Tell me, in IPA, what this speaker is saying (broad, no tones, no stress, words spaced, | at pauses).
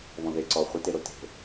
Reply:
βɔ̃ðe ǀɔ χʷɪ teɾote̤